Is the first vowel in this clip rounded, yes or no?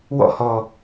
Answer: yes